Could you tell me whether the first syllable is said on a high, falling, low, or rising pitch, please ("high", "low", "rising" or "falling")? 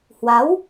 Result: rising